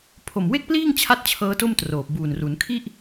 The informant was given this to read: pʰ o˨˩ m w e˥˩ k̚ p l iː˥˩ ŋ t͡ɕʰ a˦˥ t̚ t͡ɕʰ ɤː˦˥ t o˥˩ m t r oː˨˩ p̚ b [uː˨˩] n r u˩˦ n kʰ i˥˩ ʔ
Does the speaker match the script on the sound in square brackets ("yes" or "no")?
yes